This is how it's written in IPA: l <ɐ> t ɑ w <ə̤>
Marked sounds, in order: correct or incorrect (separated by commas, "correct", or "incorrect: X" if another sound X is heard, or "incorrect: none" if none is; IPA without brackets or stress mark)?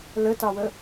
incorrect: ə, incorrect: ə